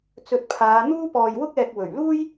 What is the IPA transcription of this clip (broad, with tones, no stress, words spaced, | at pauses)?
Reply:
t͡sɵ˧t̚pʰaː˨˧ n̪uː˥pɔː˧jwʊ˥k̚ɛː˧k̚ wɵ˨˩ɥluː˥j